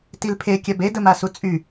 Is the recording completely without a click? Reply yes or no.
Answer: yes